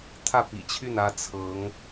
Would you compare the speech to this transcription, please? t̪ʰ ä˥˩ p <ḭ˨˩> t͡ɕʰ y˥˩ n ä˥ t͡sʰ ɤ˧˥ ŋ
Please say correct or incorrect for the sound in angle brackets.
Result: correct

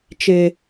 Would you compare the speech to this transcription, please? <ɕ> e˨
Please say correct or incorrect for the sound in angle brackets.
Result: incorrect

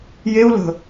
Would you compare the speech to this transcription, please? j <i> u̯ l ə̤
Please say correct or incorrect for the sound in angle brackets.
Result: incorrect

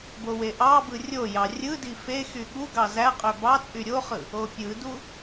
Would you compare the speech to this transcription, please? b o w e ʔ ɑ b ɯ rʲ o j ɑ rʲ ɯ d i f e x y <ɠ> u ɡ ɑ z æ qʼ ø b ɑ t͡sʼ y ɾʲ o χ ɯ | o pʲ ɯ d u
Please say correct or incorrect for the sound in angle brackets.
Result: correct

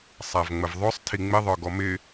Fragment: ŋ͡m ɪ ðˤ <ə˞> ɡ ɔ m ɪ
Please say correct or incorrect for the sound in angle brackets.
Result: correct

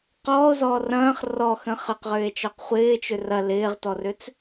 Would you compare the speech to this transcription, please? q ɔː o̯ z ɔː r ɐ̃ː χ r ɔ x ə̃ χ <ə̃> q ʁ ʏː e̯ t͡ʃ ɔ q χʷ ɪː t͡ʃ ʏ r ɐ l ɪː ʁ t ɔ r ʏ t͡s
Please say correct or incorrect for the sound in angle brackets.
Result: incorrect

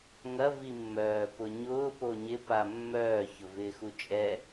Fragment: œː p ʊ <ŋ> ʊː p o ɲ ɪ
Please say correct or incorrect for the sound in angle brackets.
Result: incorrect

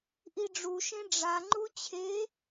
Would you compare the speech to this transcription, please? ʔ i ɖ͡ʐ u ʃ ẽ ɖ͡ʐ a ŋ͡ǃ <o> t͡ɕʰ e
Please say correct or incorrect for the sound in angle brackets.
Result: incorrect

